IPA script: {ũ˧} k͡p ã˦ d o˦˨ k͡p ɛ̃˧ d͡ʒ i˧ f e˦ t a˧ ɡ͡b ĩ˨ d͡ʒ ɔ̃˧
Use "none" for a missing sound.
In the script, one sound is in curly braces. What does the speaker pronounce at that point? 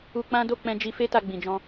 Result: u˧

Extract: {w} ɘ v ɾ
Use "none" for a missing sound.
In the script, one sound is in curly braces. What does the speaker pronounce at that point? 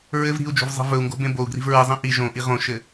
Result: ɹ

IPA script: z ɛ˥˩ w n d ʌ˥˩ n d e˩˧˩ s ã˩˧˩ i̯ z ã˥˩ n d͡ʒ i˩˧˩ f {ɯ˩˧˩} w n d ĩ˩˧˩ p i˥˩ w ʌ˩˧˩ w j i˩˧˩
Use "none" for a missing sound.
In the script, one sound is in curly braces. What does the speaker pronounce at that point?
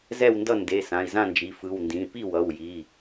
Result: ɯ˩˧˩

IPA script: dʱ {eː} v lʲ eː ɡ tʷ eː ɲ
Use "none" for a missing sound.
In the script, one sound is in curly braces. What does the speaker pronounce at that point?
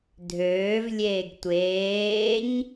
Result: øː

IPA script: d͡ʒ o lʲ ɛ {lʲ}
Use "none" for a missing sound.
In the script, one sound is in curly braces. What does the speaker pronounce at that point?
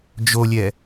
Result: none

